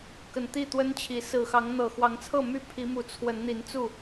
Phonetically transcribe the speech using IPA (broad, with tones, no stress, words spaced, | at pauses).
kə˨˩nt̪i˥˨t̪wə˦nt͡ɕʰi˨˦ sɹ̩˨˩xɑ˨˦ŋ n̪ɤ˨˩ xwɑ˨˦ŋt͡sʰɤ˥˨my˥˨pʰi˨˦ mu˨˦t͡sʰwə˨˦nn̪i˨˦nt͡su˥˨